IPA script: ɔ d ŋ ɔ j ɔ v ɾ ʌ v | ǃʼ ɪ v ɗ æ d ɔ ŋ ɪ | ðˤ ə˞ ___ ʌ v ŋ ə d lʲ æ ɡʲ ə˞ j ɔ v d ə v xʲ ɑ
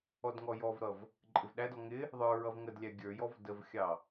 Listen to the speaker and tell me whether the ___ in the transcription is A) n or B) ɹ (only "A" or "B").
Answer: B